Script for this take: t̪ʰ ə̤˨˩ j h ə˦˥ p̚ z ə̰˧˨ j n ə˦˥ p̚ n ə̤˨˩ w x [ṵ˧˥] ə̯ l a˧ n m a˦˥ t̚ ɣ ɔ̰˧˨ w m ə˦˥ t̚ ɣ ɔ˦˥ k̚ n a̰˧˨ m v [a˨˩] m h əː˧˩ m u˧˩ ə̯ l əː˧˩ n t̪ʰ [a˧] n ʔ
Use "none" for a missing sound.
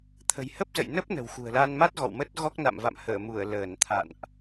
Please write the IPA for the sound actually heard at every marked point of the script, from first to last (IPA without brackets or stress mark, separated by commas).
ṳ˨˩, a̰˧˨, a̰˧˨